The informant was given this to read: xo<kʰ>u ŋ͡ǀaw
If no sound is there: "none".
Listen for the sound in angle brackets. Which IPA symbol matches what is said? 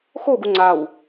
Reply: ɡ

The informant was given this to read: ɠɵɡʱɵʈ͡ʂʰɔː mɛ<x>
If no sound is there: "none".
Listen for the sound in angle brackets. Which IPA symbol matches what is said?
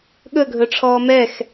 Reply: x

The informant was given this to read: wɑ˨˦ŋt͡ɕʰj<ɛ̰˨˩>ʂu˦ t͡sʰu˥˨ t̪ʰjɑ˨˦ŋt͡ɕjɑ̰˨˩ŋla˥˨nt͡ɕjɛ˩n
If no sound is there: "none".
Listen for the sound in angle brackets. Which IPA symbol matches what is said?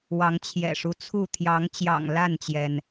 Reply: ɛ̰˨˩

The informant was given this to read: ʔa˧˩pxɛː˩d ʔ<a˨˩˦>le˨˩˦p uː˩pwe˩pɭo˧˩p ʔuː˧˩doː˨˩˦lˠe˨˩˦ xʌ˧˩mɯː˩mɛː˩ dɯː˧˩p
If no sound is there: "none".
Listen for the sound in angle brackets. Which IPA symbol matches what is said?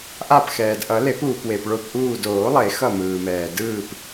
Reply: ʌ˨˩˦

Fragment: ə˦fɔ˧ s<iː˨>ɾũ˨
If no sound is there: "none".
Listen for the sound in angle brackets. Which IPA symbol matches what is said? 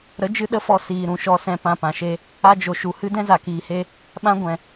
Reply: iː˨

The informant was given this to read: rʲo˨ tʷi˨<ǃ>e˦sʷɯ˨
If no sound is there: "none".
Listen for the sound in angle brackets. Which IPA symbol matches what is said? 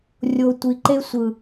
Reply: ǃ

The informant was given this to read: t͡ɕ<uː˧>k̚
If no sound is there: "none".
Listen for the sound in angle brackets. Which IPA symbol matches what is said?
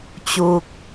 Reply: uː˧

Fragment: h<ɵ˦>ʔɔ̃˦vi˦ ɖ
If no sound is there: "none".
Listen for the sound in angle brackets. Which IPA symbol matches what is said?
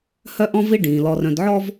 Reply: œ˦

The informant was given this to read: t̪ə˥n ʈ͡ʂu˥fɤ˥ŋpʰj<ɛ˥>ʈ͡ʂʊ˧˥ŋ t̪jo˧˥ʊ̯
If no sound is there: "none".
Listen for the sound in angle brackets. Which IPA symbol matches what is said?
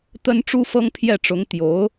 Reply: ɛ˥˩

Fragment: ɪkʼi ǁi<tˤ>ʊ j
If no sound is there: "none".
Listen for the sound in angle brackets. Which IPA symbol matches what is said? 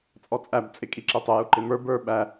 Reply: tˤ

